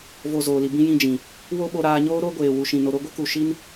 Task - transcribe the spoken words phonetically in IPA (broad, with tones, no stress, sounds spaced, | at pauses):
v o˨ z oː˨ l i˨ b ĩ˧ j ĩ˧ d͡ʒ ĩ˨ | w o˦ ɓ o˧ ɾ aː˧ ɲ oː˦ ɾ o˦ ɡʷ eː˨ w u˨ ʃ ĩ˨ n o˨ ɾ o˧ ɡʷ ɨ˦ k u˨ ʃ i˦ n